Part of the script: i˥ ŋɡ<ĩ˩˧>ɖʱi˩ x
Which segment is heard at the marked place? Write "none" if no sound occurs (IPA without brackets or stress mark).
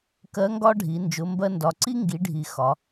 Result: i˩˧